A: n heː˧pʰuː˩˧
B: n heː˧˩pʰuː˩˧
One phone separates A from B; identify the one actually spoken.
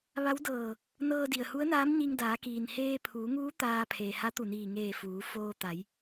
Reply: A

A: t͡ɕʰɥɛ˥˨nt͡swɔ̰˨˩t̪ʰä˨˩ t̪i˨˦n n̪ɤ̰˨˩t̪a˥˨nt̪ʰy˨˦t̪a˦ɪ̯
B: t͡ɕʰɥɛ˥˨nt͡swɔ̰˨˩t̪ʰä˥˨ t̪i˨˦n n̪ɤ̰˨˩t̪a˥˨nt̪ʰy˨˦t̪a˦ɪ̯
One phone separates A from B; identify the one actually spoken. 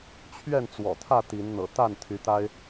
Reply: B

